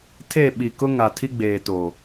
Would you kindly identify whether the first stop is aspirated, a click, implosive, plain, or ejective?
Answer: aspirated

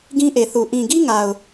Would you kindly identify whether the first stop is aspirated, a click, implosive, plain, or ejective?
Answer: plain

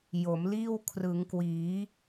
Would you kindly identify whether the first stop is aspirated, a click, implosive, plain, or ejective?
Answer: aspirated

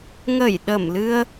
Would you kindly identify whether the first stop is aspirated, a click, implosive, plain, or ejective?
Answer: implosive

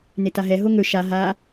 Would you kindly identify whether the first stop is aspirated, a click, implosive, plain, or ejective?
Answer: plain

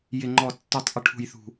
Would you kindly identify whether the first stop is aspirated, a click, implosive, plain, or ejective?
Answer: click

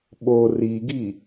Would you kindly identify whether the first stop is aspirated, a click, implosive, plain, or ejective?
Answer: implosive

